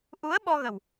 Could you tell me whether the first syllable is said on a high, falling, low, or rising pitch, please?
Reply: rising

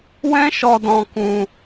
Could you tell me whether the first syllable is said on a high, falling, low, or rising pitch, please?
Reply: high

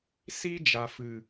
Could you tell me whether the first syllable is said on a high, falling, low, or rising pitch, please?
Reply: high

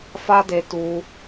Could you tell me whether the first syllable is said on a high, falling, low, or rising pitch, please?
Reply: high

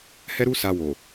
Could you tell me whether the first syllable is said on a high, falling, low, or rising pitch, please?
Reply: high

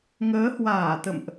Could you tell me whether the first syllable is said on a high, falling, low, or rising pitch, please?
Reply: rising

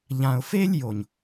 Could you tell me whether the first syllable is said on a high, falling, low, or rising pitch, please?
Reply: low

